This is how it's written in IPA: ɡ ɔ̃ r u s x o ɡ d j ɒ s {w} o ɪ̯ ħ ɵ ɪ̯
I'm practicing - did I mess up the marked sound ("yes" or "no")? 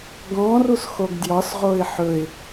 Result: yes